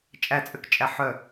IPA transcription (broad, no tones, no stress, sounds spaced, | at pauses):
t͡ʃʼ æ t͡sʼ ʏ k t͡ʃʼ æ ħ œ